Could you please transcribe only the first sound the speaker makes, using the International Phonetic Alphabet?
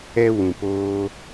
ɛ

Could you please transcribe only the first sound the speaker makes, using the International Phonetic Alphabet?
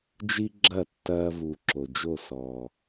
d͡ʒ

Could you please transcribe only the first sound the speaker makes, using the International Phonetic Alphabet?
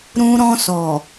ɾ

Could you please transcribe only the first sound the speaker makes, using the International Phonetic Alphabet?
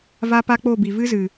v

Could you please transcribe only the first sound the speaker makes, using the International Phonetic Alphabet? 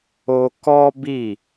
o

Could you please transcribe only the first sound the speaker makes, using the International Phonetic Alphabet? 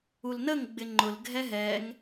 u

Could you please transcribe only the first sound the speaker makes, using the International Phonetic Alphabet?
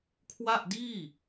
kʰ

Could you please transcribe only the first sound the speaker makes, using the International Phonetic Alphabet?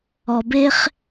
ɔ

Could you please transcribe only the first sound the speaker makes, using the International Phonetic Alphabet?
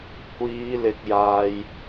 kʷ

